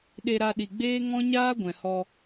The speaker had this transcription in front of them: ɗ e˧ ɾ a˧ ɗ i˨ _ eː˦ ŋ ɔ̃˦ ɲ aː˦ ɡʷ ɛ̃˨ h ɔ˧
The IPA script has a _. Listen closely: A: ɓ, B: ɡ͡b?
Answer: B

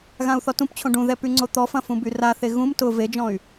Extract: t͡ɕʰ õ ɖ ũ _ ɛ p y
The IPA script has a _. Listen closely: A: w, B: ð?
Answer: B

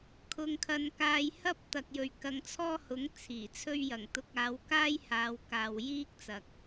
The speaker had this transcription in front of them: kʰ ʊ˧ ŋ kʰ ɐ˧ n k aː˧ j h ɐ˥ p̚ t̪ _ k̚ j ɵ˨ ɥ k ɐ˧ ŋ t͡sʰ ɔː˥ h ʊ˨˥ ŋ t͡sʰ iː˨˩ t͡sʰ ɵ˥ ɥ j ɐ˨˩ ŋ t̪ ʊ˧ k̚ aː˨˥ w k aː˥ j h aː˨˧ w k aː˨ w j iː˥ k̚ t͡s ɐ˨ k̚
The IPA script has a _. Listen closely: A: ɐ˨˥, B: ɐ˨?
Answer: B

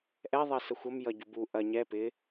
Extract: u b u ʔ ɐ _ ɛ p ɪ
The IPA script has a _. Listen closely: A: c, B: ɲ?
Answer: B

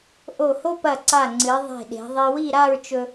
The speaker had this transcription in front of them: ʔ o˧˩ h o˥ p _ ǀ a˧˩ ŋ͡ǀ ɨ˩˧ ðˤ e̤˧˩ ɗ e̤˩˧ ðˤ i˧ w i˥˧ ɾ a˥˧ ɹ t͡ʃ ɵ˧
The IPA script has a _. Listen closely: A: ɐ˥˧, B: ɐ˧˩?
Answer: B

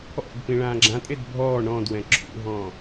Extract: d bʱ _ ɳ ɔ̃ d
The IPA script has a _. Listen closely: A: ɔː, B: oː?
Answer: A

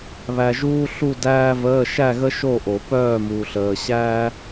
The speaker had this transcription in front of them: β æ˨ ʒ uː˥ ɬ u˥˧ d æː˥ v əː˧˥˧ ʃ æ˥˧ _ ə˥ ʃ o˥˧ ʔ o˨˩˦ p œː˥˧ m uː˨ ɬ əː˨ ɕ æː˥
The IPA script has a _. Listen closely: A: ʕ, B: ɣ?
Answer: B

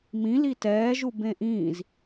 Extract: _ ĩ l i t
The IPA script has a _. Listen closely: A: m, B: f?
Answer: A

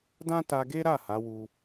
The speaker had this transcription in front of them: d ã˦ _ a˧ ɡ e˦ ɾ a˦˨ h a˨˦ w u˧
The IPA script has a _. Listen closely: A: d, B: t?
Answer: B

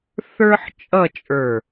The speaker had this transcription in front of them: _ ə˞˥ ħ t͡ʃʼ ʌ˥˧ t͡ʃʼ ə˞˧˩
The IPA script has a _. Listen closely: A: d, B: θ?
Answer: B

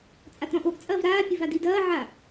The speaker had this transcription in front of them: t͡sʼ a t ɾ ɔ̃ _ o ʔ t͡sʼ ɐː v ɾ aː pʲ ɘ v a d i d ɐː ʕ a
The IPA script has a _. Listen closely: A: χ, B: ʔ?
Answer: B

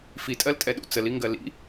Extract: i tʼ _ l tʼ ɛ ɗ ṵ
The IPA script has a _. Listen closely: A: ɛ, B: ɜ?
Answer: B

